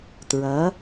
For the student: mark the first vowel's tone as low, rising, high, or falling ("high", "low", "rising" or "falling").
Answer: rising